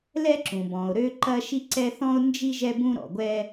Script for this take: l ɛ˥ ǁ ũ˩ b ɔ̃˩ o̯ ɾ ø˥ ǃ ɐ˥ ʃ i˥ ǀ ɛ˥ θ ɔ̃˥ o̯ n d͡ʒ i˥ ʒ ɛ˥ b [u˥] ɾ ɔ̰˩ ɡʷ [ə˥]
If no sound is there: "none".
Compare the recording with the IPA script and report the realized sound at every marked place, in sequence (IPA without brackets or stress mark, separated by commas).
ũ˥, ɛ˥